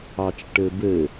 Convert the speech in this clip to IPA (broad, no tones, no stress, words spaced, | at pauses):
ɑt͡ʃʈɘbɘ